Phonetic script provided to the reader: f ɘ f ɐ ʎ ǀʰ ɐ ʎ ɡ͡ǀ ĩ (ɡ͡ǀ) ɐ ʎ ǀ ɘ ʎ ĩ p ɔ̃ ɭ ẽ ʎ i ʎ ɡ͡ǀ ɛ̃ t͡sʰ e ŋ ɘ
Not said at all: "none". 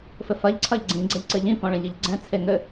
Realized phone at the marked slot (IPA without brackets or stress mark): ɡ͡ǀ